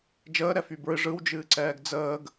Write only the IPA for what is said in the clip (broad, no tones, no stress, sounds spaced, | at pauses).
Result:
d͡ʒ əː ɾ ɛ f y b ɹ ɨ ʐ ɯ w d͡ʒ ɨː ǀ ɛː ɡ d͡z əː ɡ